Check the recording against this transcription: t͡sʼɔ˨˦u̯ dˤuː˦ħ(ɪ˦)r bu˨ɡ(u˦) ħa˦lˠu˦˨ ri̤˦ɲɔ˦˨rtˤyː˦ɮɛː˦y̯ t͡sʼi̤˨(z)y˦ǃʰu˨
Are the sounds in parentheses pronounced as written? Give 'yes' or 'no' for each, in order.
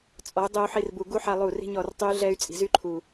no, yes, yes

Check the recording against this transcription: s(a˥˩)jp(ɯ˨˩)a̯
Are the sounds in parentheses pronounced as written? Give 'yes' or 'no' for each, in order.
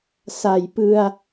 no, no

